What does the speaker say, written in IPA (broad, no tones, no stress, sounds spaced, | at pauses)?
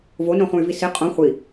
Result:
v o n õ χ ũ y̯ v i s i qʼ õ χʷ i